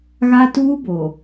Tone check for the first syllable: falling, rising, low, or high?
high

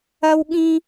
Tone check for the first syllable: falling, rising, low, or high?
high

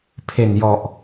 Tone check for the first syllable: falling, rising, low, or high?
low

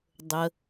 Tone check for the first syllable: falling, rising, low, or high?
low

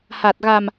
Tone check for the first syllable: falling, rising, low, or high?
low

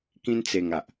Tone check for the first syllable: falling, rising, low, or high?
high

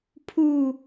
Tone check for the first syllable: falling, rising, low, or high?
low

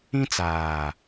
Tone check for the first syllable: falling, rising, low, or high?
high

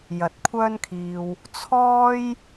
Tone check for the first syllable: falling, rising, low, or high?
rising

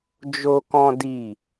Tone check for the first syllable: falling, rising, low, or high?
high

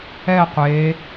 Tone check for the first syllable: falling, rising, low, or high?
falling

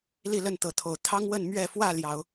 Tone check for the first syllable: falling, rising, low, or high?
falling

